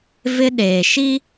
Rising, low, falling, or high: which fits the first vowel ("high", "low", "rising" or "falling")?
high